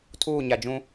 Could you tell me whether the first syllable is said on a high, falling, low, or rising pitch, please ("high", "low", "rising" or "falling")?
falling